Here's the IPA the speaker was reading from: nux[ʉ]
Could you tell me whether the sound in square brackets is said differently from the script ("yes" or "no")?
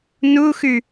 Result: no